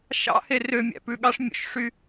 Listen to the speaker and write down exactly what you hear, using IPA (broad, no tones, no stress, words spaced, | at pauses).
ʃɑ̰ herømʲæ̰ pʉɠɑʂmʲo̰ʃʂy